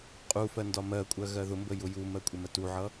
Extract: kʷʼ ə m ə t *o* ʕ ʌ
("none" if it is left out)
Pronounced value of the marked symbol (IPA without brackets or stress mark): u